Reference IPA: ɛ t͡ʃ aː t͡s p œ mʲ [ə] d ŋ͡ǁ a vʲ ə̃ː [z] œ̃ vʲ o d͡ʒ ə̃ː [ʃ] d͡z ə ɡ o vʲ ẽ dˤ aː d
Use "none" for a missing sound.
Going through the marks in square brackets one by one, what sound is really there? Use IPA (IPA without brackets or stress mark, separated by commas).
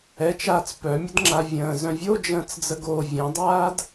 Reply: ə, z, t͡s